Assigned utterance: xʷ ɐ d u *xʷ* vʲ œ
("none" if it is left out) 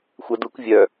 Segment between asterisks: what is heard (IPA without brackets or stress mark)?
kʷ